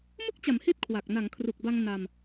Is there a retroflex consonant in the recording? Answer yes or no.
no